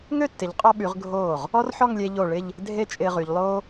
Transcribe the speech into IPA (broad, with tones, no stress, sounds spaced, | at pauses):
ŋ ø˥˧ tː ɪ˩˧ ʎ qʼ ɔ˧ ɓ y˩˧ ʁ ɡʱ oː˧˩ ʁ | ɔ˥ r ħ ɔ˥˧ ŋ lʲ e˧ ʎ o˧˩ ɭ ɪ˥˧ ʎ | dʱ e˥ t͡ʃʼ ɪː˧ ʁ y˩˧ ʎ lˠ oː˥